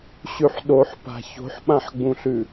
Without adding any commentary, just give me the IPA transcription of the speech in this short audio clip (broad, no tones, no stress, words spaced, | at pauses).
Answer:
ɕʉħɗoħpa̤ ço̤ħɓãħɡ͡bũɬʉ